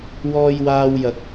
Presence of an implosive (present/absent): absent